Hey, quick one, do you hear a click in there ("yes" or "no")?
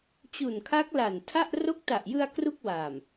no